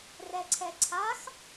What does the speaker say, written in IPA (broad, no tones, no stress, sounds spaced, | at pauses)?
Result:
r ɛ ǀʰ ɛ ǀʰ a x